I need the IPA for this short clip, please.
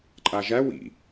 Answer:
ǃʼ a ʒ æ w ḭ

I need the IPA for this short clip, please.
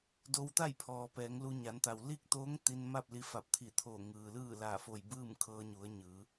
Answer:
d o˧ w t̪ a˥˨ j pʰ ɔː˩ p ɛː˩˧ ŋ l u˧ ɲ a˩˧ n t̪ a˩ w l i˥˨ k̚ t̪ oː˧˥ ŋ t̪ i˧ n m a˥˨ p̚ l i˧ f a˧˩ p̚ t̪ʰ i˧˩ t̪ʰ oː˧˩ ŋ ɯː˩ l ɯː˥˨ l a˧˩ f o˧˩ j b ɯː˥˨ m kʰ ɤː˧ ɲ u˩˧ ə̯ ɲ ɯː˩˧

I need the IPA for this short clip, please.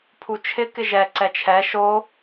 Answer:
pʰ u t͡ʃʰ ɪ k ɪ ʒ ɛ ǀ ɛ t͡ʃʰ ɛ ʃ o

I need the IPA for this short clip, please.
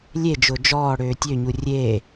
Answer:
lʲ e d͡ʒ ʊː d͡ʒ ɔː ɽ øː tʲ ø ɲ u rʲ e

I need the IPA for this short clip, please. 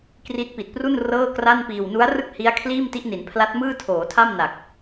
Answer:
k r i˦˥ t̚ p i˨˩ t̚ p r u˥˩ n r ɤː˥˩ k r a˥˩ n p iː˧ w n u˦˥ a̯ r ɯ˥˩ k̚ h i˦˥ a̯ kʰ l iː˥˩ m t i˦˥ ʔ n i˩˦ n pʰ l a˦˥ t̚ m ɯː˥˩ tʰ oː˩˦ tʰ a˥˩ m n a˨˩ k̚

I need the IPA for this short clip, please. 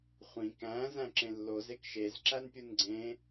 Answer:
χʷ ĩ k æ̃ z æ̃ ǁ ẽ lː o z e k ʃ e z ǁ æ n pʲ u n ɡ͡ǀ ẽ

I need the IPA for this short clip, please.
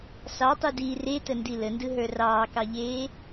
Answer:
s ɑ tˤ ɯ d iː r e t ə n d i l ə n d ɯ ɦ ə˞ r ɑː k ɑ ʎ eː

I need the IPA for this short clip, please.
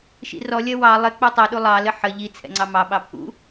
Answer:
ʃ ḭ r ɔ lʲ ɜ w ɑ lˠ ɪ k͡p u tˤ ɛ ɗ u lˠ ɑ l ə ħ ə ʎ i t͡sʰ ɛ̰ ŋ͡ǀ ɑ m ɑ ɓ ɑ pʰ ṵ

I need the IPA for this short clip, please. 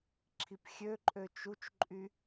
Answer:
ǁʰ i p xʲ ø ǃʼ ø t͡ʃ u t͡ʃ ǃʼ y

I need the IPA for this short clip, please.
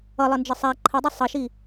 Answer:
ʌ lˠ ʌ n d͡ʒ ɘ sˤ a ǃʰ ɘ dˤ ɪ sˤ ʌ ʃ i

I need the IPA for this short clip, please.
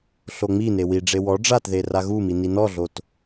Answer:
ɬ o ŋ͡m i n e w i ɖ͡ʐ e w ɔ ɖ͡ʐ a t ð e r a ɣ u m i n i n ɔ ɮ o t

